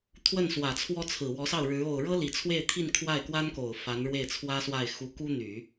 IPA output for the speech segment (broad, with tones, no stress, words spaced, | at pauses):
t̪ʰwə˥˩nswä˨˩t͡sʰwɔ˥t͡sʰɹ̩˨˩ wɔ˧˥sɑ˥˩ʊ̯ɻɻ̩˧˥ o˨˩ʊ̯ɻɤ˥ li˨˩t͡sʰwe˥˧ɪ̯t̪ʰi˥˧n kʰwa˥˩ɪ̯kwa˥nko˨˩ʊ̯ fa˧˥nɻwe˥˩ɪ̯ t͡sʰwä˥swa˥˩ɪ̯ xu˧˥ ku˥n̪y˨˩˦